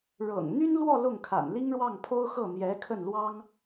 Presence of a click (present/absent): absent